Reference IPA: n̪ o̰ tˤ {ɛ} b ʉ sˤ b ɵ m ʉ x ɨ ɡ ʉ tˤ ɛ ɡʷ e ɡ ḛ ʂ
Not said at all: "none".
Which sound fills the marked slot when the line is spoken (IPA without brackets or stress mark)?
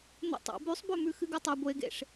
ɛ̰